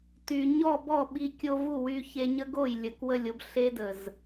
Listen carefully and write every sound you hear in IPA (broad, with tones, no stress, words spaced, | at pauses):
ty˨ɲɔ˦˨ bɔ˦˨ɓi˧ kʲo˧vu˦˨wy˧ çe˧ɲə˦ɡo˦˨j lʲə˨kwə˦˨lʲo˦b ɬe˦də˨z